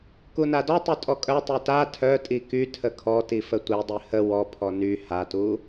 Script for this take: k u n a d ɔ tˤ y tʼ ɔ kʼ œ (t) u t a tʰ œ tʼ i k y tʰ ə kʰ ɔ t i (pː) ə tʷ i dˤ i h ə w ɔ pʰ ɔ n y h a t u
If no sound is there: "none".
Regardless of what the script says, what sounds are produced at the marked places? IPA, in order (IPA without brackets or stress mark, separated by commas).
tˤ, f